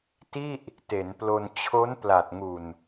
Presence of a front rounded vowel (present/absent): absent